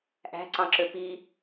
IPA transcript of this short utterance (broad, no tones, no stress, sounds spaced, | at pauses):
ʔ æ̤ ǀ ɑ̃ ǁ ø p i